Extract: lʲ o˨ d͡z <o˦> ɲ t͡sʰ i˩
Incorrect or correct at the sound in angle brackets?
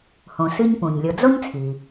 incorrect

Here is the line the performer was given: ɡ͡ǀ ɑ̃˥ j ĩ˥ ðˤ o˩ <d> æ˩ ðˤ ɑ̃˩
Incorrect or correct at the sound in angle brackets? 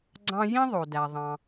correct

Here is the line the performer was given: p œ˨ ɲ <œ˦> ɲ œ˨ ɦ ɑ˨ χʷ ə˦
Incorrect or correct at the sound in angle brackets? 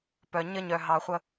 incorrect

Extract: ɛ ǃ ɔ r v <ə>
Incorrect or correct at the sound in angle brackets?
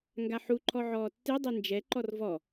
incorrect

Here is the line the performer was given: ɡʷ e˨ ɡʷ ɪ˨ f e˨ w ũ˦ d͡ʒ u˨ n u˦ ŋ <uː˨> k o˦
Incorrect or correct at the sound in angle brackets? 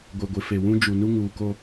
correct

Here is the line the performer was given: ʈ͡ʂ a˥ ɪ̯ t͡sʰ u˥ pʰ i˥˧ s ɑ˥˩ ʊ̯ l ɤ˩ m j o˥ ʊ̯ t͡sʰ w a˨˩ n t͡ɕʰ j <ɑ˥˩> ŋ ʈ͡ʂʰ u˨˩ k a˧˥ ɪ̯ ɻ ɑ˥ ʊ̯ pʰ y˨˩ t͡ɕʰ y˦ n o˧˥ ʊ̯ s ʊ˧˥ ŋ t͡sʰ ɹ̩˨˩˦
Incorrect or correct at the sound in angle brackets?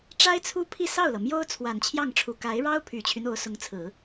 correct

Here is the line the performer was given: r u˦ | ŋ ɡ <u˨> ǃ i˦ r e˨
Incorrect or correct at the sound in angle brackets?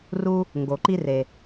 incorrect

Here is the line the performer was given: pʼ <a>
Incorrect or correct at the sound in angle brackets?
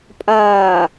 incorrect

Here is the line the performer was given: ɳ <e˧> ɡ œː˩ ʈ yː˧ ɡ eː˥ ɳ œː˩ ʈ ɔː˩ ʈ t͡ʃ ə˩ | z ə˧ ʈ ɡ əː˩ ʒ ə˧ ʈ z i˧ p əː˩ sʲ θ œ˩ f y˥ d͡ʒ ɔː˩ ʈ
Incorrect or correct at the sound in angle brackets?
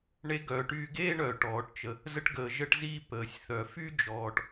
correct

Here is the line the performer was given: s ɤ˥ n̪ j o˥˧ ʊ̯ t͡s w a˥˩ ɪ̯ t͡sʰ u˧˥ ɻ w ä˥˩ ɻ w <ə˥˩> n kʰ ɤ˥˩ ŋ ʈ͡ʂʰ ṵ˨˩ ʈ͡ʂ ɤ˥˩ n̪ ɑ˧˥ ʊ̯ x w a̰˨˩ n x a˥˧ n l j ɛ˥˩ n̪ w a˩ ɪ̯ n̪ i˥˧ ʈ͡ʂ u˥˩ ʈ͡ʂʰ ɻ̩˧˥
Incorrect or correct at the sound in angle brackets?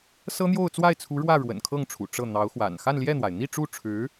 incorrect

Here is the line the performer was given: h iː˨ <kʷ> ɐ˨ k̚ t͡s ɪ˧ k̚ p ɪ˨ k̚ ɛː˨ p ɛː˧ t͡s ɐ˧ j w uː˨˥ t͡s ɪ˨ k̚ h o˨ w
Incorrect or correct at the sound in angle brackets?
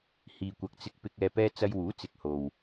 correct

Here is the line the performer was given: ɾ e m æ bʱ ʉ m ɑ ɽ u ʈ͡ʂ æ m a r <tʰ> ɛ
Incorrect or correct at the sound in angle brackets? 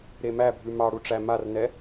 incorrect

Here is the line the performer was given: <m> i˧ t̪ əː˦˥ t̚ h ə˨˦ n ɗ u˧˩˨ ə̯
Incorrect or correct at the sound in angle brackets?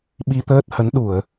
incorrect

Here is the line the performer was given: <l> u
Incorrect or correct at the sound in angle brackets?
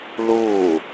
correct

